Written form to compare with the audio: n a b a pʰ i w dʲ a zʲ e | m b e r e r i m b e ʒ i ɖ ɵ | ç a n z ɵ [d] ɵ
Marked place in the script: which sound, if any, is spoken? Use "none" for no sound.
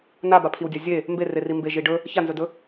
d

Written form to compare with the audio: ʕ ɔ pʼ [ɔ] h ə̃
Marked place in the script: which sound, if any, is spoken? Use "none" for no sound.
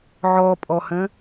ɔ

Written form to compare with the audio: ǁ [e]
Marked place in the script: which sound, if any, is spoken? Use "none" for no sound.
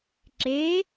e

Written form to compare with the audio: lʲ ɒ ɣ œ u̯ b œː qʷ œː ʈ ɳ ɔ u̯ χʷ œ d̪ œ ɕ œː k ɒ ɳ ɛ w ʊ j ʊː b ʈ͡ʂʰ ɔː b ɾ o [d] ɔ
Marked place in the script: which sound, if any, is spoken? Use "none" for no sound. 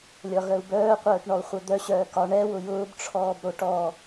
ʈ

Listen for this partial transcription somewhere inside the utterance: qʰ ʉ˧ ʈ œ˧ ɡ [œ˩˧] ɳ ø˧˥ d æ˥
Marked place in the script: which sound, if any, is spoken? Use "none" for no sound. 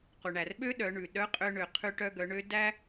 œ˩˧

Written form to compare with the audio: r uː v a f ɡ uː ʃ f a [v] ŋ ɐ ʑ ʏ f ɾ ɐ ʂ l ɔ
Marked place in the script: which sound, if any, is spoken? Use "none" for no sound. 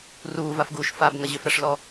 b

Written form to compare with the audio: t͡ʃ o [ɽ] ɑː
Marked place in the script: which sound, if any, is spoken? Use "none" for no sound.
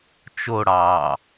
ɽ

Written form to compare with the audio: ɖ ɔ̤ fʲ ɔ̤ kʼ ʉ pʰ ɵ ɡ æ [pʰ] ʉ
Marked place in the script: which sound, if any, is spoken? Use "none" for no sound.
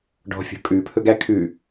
kʰ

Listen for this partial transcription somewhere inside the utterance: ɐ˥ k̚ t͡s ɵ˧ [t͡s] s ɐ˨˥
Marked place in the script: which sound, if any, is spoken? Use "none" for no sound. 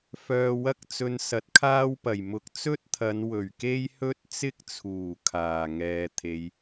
n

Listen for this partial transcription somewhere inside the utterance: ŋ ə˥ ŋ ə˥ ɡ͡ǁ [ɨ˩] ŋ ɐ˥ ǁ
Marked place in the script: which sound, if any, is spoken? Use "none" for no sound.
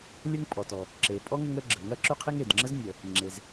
ə˩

